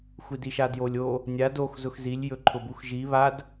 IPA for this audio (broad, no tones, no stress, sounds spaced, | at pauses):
xʷ i d i ʃ a d j o lʲ o | nʲ a d o x z ʊ x z i lʲ j ɵ ǃʰ ʊ b u x ʒ i β a d